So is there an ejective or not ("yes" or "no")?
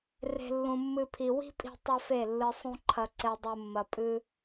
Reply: yes